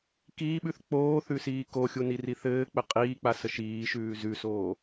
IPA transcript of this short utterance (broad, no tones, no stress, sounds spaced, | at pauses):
k iː ɓ ʉ θ k͡p oː θ ʉ s iː k o xʲ u n i r i θ ɘː k͡p ɘ qʼ iː k͡p a s ə ʃ iː ʃ ʉː z ʉ s oː